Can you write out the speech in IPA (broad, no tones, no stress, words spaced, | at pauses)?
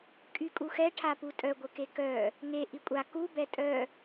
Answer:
kʼykʼuxɛ ʈʰaputʼœ ɡʷəkekœ | ŋe ʔikʷʼa ku bɛtʼœ